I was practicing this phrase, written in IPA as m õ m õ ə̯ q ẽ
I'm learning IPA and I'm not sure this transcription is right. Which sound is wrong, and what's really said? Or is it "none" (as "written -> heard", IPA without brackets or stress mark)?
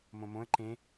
q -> ǃ